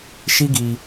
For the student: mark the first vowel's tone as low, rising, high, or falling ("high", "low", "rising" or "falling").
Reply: high